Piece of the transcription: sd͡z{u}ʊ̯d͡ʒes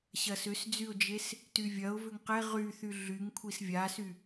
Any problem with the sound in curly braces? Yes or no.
yes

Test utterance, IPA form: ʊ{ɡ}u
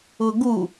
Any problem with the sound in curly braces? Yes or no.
no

